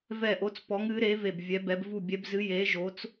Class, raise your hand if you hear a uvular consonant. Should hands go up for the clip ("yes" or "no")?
no